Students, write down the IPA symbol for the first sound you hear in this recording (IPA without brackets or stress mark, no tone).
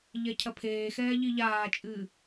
ʎ